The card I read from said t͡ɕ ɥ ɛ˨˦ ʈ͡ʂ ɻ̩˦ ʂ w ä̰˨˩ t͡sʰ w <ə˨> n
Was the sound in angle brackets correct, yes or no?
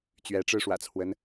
no